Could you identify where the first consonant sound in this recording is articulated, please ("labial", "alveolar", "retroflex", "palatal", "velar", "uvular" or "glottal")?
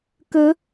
velar